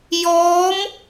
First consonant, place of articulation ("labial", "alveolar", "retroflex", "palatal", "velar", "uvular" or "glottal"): palatal